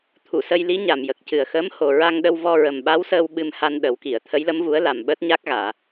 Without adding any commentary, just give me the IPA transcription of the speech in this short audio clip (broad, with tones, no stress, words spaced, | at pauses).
t̪ʰu˨˩˨sə˧jli˧˥ ɲa˨˩mjə˨˩k̚cɨ˨˩ə̯xəː˧˥m ho˨˩ɹa˧ŋɗə˧w vɔ˧ɹə˨˩mɓa˧˥wsəː˧w ɓɨ˧mha˧n ɗə˨˩˦wki˨˩˨ə̯ t̪ʰə˧˥jlə˧˥mvu˧˥ə̯la˨˩m ɓəː˦˥t̚ɲa˦˥k̚ɣaː˨˩˨